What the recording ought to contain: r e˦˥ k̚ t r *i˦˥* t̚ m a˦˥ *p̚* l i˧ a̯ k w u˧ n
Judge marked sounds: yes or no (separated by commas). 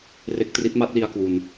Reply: yes, no